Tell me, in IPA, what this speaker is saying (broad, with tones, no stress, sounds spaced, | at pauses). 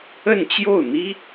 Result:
ə˥˧ n t͡ɕ j o˥˩ ʊ̯ n̪ i˥